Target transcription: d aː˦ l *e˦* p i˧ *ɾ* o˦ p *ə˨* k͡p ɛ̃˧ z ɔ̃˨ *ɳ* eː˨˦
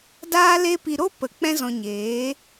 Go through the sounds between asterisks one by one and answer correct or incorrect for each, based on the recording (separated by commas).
correct, correct, correct, incorrect